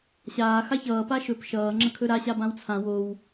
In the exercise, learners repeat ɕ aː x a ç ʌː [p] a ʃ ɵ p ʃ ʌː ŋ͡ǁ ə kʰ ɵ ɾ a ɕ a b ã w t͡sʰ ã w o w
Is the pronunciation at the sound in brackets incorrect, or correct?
correct